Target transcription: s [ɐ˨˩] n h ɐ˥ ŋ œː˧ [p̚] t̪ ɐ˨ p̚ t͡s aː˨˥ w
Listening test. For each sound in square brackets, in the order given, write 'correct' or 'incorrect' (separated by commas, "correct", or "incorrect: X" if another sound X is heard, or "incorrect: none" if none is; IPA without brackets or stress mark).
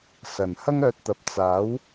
correct, incorrect: t̚